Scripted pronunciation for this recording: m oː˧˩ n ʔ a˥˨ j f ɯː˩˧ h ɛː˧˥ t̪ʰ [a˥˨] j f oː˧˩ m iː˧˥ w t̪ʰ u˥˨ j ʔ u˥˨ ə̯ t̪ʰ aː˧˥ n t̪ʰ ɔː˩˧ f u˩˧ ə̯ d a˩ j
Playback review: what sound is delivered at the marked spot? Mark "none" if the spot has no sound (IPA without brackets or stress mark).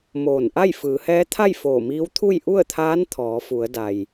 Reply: a˥˨